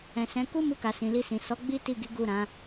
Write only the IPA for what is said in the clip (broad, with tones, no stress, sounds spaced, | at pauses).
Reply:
ɛ̃˨ s ɛ̃˨˦ k u˦ m u˧ k a˨ s ĩ˨ l i˧ s ĩ˨ s ɔ˨˦ ɡ͡b i˦ t i˦˨ ɡ i˨˦ ɡ u˦˨ ɾ ã˨˦